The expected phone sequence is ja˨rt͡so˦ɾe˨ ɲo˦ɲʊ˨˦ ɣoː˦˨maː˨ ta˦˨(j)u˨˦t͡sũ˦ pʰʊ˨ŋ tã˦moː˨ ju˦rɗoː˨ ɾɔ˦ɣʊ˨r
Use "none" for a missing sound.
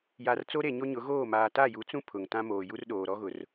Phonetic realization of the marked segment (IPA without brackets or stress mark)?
j